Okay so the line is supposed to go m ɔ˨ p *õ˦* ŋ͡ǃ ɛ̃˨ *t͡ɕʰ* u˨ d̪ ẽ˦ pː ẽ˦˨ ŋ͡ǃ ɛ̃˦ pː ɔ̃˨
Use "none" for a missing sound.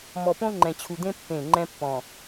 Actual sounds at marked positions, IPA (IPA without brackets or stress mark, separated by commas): õ˦, t͡ɕʰ